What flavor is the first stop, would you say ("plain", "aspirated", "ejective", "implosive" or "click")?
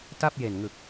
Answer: plain